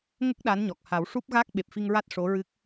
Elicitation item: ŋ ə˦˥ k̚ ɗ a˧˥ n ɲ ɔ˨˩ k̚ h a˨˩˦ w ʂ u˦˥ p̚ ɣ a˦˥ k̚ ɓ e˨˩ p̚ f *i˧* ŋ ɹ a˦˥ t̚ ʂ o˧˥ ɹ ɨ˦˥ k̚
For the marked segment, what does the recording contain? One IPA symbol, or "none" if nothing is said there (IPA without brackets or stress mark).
i˧